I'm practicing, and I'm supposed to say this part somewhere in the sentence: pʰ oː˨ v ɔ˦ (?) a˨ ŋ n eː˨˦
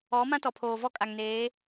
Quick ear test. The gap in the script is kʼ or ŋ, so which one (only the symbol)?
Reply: kʼ